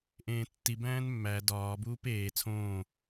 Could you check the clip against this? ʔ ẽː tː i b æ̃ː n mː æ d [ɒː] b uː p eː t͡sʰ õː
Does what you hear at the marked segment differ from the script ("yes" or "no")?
no